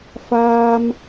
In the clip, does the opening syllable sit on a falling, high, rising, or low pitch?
high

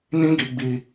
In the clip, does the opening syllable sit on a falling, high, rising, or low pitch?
high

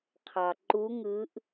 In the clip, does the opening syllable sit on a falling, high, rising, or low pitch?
low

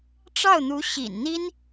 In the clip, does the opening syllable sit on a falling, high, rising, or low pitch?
falling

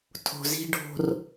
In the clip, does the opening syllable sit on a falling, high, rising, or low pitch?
low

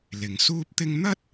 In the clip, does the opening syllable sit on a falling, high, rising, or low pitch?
low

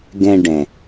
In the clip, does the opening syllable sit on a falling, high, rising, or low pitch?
high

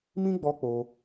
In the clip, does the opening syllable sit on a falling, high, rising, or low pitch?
high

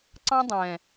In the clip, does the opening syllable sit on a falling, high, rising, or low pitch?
high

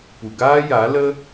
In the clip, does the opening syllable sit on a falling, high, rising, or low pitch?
low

